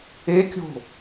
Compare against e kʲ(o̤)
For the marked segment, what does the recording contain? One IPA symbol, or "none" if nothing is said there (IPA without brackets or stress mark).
o̤